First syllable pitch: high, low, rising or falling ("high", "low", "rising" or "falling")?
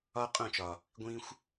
high